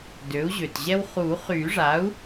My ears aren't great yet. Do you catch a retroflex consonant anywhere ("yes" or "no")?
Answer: yes